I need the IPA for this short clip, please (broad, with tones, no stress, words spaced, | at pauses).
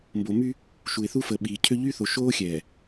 mbo˨my˦ | ʃu˨ɪ̯θu˦ fə˨ɓiː˨cʰø˦ ʎy˦θo˨ʃoː˦ xʲɛː˨